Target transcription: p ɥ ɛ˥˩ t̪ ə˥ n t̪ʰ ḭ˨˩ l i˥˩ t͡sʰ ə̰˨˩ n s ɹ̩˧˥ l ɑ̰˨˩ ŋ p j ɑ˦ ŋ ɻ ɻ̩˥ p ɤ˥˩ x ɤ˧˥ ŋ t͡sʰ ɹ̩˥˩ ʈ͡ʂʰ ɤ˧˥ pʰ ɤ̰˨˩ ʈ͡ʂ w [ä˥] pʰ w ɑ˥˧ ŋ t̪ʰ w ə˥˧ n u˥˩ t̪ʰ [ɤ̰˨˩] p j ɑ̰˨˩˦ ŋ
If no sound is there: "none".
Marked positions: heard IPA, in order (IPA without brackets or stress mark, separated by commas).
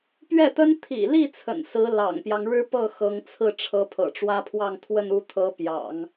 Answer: ä˥, ɤ˧˥